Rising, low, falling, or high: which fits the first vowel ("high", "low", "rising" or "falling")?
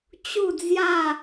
falling